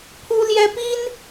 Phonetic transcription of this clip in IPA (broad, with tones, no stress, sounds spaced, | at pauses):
pʰ u˥ l j ɛ˥ p i˥ n